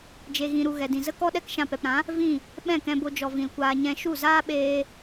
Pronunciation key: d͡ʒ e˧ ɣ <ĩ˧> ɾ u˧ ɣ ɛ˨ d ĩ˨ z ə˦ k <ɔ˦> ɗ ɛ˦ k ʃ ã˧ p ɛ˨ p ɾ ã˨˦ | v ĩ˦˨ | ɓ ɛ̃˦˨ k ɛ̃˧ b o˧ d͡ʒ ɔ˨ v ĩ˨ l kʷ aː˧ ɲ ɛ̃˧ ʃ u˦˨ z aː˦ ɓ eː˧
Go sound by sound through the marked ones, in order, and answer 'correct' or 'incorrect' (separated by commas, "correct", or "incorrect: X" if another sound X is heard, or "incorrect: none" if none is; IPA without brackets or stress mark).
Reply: correct, correct